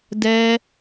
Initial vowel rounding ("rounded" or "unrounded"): unrounded